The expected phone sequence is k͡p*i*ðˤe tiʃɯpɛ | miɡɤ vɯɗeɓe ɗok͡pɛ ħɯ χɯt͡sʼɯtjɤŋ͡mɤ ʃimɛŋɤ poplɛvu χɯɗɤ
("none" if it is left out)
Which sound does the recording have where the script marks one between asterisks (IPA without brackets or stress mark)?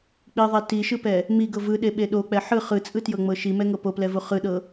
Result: i